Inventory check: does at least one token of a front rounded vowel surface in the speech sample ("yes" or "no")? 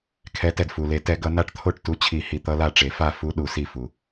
no